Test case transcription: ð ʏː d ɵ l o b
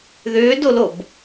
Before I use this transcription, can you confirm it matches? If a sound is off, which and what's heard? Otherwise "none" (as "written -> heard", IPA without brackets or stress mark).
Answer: ɵ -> o